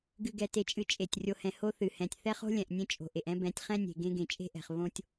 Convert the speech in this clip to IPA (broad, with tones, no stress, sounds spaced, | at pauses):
ɡ ɨ˨ ɡ ɛ˨ t e˨ t͡ʃʼ ɨ˨ t͡ʃʼ e˨ tʲ rʲ o˨ h ɛ̃˨ h o˦ θ ɨ˨ h ɛ̃˨ tʲ θ ɛ˦ χ o̤˦ lʲ ɛ̃˨ ʔ nʲ ẽ˦ t͡ʃʼ o̤˨ ʔ e˨ ʔ ɛ̃˦ b ɛ̃˨˦ tʲ χ ɛ̃˦ nʲ e̤˨ ɡ ẽ˦ ɡ ẽ˨ t͡ʃʼ e̤˦ ʔ ɛ̤˨ χ β õ˦ tʲ